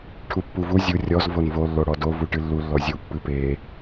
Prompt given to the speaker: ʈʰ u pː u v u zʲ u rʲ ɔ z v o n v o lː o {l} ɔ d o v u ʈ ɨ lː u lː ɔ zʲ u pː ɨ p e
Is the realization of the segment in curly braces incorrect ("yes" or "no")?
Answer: yes